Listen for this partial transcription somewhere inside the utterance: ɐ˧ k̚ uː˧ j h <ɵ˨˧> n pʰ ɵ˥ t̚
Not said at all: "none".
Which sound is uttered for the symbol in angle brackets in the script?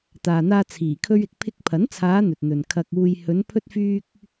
ɵ˨˧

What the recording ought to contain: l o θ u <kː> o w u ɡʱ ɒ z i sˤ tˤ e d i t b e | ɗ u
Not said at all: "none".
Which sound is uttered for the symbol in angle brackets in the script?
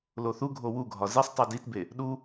ɡʱ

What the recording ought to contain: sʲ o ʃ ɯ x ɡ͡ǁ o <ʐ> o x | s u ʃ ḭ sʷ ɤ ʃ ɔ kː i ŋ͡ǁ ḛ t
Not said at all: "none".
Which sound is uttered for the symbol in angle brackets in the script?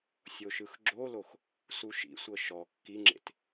l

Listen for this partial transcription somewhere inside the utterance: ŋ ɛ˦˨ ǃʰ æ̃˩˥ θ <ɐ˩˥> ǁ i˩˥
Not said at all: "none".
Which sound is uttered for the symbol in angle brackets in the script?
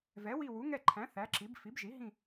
æ˩˥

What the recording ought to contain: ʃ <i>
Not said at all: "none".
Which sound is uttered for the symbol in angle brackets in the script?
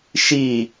i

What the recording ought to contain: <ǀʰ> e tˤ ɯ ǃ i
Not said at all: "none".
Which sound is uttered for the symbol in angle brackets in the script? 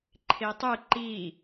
ǃʰ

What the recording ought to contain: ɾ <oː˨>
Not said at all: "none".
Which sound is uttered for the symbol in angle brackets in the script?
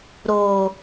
oː˨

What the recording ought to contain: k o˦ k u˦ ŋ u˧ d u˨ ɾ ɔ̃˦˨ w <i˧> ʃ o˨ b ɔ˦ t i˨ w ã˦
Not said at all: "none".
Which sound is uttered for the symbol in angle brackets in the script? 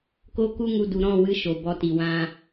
ɨ˧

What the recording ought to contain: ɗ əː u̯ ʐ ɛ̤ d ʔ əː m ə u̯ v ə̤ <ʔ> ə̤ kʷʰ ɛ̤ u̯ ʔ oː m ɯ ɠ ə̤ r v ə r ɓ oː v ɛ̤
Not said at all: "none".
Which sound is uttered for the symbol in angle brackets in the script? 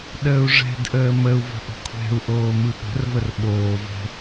ʔ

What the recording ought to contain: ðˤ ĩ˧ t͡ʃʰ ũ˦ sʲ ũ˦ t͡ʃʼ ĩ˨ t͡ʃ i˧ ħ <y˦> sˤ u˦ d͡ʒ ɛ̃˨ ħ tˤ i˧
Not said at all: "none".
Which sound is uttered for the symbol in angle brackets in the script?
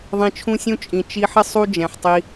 ɪ˦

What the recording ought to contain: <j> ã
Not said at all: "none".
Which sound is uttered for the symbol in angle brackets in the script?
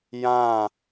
j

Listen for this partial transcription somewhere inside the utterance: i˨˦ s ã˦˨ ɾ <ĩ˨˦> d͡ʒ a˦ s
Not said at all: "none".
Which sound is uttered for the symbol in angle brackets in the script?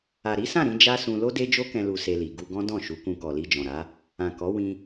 ĩ˨˦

